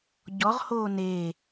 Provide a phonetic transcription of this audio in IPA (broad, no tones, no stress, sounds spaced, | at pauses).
ɟ ɔ ʁ h oː n e